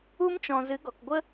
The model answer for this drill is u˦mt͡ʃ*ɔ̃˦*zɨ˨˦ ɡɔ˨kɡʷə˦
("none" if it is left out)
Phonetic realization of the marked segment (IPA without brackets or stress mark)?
ɔ̃˨